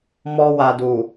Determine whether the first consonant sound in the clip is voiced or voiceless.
voiced